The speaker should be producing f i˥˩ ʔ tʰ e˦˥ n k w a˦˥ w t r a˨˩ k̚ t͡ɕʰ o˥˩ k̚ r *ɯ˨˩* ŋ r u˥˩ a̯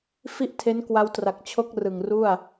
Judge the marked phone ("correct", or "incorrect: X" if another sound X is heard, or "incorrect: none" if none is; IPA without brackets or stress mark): correct